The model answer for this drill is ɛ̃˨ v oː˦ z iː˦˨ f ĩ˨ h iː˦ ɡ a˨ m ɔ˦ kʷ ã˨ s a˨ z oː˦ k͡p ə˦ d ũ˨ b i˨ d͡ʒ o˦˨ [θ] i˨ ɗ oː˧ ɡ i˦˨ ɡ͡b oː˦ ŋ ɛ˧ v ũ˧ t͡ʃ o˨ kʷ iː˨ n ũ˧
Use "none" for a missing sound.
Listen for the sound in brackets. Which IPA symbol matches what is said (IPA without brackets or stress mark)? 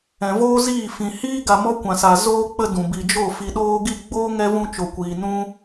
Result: f